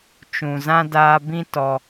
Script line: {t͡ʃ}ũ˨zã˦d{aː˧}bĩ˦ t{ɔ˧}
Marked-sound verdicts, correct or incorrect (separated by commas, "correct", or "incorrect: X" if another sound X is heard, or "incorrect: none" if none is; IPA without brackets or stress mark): correct, correct, correct